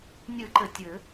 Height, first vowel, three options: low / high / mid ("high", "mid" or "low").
high